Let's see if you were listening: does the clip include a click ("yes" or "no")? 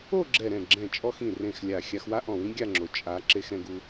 yes